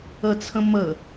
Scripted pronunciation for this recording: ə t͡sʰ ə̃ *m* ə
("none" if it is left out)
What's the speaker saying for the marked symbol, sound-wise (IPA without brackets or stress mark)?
m